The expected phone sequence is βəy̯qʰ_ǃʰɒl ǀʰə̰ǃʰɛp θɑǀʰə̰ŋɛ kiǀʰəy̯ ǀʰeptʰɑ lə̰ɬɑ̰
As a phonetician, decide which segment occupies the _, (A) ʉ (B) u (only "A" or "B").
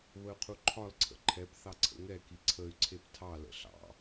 B